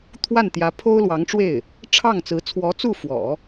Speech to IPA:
t̪ʰwa˥˩nt̪jä˧˥ pʰo˥ʊ̯lwɑ˧˥ŋʈ͡ʂwe˥˩ɪ̯ | ʈ͡ʂʰɑ˥˩ŋt͡sɹ̩˧˥ t͡sʰwɔ˧˥t͡su˥˩fwɔ̰˨˩˦

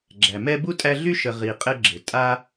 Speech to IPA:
ɡ͡ǁæ˩mɛ˦bu˥tʼæ˦ ɮy˥ʃə˨ ʁi˩ qʼɘ˦ɡ͡ǁɘ˩ tʼa˦

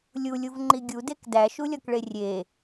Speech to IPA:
lʲulʲuvŋ͡ǃi ɡʲudek dæʃulʲɒkɭe rʲe

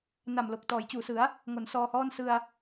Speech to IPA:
na˨˩mlo˨˩k̚tɔː˩˦j t͡ɕuː˨˩sɯ˩˦a̯ | ŋo˩˦nsɔː˧hɔː˥˩n sɯ˧a̯

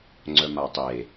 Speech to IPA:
ŋ͡ǀœmatˤe

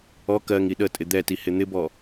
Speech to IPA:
ɔ kɜŋ iɗətʼɪ d̪ɛti hɪn̪ɪbɔ

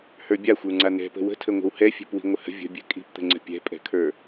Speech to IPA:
hə˞bʲaxʷə˞ŋ͡ǀa n̪ɛ̤pə̤ wə̤tʰəŋʷə̤w hɛfʲɛ̤pwi̤ ŋʷəhə̤ vʲə̤bʲɛ̤ kʼi̤pt̪ə̤ŋ͡ǀə̤ pʲɛ̤pʼɛ̤kʰə˞

